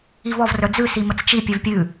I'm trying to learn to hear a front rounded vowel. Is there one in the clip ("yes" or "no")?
yes